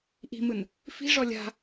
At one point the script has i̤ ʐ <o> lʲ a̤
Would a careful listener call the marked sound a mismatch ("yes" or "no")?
yes